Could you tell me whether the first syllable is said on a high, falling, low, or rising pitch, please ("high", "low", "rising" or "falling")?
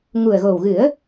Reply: low